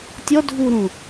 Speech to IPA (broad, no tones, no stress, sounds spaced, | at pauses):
tʲ ɔ dʱ u ɾ ũ